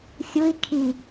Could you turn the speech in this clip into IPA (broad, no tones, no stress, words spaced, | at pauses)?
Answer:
xʲui̯ kʰi